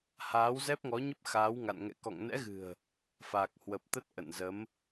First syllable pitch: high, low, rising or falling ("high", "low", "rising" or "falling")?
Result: rising